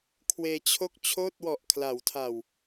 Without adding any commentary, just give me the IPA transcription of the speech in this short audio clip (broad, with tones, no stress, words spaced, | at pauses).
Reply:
kʰweː˧t͡ɕʰo˥˩k̚ t͡ɕʰoː˥˩t̚wɔ˨˩ʔkʰla˩˦wtʰa˨˩w